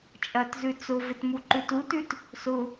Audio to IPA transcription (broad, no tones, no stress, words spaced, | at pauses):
t͡ʃʼɐtzʉ t͡sʊvɪt muǃʉtutʉt | sʊ